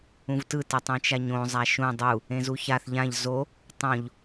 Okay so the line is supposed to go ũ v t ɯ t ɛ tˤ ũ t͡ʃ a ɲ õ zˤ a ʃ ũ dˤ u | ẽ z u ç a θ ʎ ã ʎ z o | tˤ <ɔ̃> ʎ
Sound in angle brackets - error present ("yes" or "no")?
yes